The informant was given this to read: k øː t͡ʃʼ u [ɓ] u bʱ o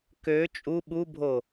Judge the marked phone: correct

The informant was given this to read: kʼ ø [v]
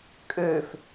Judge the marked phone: incorrect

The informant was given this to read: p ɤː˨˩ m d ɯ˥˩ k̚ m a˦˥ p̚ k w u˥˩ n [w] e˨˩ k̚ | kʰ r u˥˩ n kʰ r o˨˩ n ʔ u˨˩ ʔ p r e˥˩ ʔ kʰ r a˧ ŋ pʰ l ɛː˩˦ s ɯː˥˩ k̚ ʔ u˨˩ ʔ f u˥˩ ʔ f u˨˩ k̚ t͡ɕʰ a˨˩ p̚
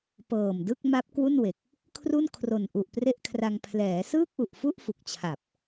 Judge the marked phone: correct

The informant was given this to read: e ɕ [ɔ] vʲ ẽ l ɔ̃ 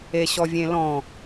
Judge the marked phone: correct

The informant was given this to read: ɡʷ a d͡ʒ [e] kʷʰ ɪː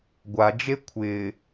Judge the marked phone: correct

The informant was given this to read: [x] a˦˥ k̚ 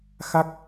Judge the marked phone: correct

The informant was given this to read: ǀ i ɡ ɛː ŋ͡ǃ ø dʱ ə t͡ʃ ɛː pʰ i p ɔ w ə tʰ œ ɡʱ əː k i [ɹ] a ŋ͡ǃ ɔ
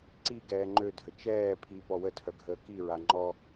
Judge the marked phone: correct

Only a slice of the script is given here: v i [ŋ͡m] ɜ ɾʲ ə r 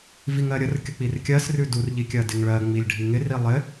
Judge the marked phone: incorrect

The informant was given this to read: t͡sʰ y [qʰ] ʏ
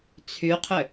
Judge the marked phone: correct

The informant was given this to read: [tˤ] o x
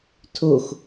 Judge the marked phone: incorrect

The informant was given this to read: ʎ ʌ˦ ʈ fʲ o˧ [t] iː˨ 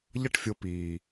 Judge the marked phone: incorrect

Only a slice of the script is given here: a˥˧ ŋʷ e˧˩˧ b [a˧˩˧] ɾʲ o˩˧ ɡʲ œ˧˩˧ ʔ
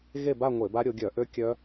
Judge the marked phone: incorrect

